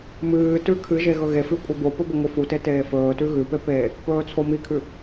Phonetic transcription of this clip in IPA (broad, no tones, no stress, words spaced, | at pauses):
mɨːtʉ kʰɨʒe ɣɵɣefʉ kʷʼebopɵ bɵŋʷɨfute teːfɵːtʉ ɣʉpe pe | pɵːt͡sʰomikʰʉ